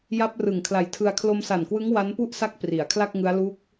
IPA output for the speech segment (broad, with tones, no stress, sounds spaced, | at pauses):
j a˦˥ p̚ r ɯ˨˩ ŋ kʰ l a˨˩ j tʰ ɯ˧ a̯ kʰ l o˧ m s a˨˩ n k w ɯ˦˥ ŋ w a˦˥ n p u˥˩ ʔ s a˦˥ k̚ p r i˩˦ a̯ kʰ l a˥˩ k̚ ŋ ɯ˦˥ a̯ l u˦˥ k̚